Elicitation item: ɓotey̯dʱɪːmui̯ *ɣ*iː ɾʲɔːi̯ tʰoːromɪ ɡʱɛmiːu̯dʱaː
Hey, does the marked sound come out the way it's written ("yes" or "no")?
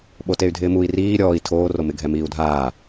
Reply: no